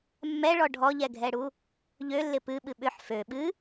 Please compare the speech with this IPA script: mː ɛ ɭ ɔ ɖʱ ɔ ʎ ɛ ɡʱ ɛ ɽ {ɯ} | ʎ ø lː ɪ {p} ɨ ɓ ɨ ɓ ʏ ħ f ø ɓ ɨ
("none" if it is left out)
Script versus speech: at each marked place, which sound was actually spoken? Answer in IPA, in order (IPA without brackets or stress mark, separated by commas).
u, p